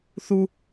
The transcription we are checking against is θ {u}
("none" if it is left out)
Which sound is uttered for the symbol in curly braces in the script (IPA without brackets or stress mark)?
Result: u